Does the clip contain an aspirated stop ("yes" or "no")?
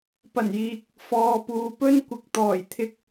yes